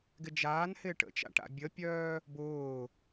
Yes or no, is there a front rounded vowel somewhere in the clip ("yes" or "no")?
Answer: yes